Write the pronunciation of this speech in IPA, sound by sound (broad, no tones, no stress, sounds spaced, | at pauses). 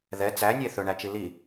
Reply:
ð ɛ t͡s æ nʲ e θ ɵ ɳ æ t͡ʃ i l i